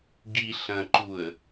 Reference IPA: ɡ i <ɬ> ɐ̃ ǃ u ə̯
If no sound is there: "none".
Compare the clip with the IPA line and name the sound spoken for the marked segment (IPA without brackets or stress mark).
ɬ